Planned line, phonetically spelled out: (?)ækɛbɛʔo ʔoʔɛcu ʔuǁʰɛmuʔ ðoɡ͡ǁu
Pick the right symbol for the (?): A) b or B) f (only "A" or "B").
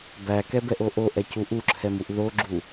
A